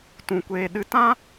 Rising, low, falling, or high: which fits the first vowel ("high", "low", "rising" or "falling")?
low